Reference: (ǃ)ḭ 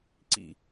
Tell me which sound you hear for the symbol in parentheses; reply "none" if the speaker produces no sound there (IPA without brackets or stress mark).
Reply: ǀ